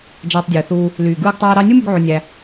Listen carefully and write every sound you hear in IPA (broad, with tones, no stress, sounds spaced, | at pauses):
d͡ʒ æ˧ tˤ dʲ ɯː˨ θ uː˧ | l yː˨ ɡ ɯː˧ ɡ tˤ æː˧ ɾ ɑ˧ nʲ u˦ m y˧ ɡ ʕ o˧ nʲ æ˧